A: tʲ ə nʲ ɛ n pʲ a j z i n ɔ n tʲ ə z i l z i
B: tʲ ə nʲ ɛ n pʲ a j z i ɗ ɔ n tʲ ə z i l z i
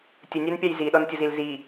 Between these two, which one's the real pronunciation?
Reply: B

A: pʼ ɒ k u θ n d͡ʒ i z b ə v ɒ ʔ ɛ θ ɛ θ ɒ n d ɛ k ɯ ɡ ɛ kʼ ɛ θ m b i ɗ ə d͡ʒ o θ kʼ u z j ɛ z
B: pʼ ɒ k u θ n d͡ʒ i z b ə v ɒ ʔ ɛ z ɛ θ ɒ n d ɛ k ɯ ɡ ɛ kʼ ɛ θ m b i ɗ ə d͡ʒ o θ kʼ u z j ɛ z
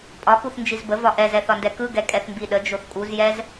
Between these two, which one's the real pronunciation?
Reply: B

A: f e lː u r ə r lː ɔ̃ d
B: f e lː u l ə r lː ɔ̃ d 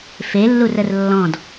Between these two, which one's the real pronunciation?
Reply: A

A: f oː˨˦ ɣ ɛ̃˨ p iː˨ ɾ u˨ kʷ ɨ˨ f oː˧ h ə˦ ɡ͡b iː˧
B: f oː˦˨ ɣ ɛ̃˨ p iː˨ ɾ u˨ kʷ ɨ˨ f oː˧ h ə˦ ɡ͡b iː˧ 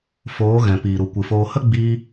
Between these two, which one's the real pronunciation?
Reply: A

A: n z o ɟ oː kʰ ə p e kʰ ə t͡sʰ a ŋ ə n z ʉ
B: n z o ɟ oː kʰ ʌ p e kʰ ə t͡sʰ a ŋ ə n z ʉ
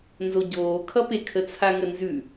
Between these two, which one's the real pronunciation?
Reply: B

